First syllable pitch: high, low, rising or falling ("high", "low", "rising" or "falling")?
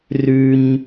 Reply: high